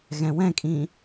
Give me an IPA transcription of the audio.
ɣ ɛ̃ w ɛ̃ kʼ ĩ

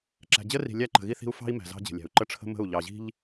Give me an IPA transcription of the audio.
ǁ æ̤˨ d͡ʑ ə˦ r i̤˨ lʲ æ˦ ǃ ə̤˨ ɣ i˦ θ i̤˦ u̯ f ɑ̤˦ i̯ m æ̤˨ z ɑ̤˦ d͡ʑ ə̤˨ lʲ æ̤˨ u̯ ǃ ə˦ ʈ͡ʂʰ ə̤˦ m ə̤˦˨ u̯ ʎ ɑ˨ ʑ i̤˦ ʎ

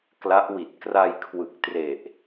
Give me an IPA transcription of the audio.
k l a˦˥ ʔ w i˨˩ t̚ k r a˧ j kʰ w ɯ˨˩ k̚ t r e˨˩ ʔ

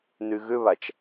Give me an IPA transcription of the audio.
n y ɣ ʏ β a t͡ʃ

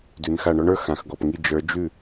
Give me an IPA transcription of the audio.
d ʉ˩˧ n x a˧˩ ɳ ɔ˥ ɳ ə˞˧˥ x ã˩˧ x ɡ ɔ˧˩ p ŋ i˥˨ d͡ʒ ə˞˧˥ d͡ʒ ʉ˥˨

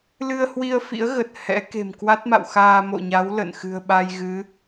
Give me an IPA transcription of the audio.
l ɨ˧ ə̯ h w i˧ ə̯ f ḭ˧˥ ə̯ ɣ ə˨˩ t̚ h ɛ̰˧˥ k e̤˨˩ m k w a˦˥ t̚ m a̰˧˨ w x aː˧ m o̰˧˨ ɲ a˨˦ w l ə̰˧˨ n x ɨ̤˨˩ ə̯ ɓ a˧ j ɣ ɨ˨˦

